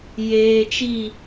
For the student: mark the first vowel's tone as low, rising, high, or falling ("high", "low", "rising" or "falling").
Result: low